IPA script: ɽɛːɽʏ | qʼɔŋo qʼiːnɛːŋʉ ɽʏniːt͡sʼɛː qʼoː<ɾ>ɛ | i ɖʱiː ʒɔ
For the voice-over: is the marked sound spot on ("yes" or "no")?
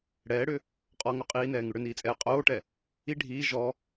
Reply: no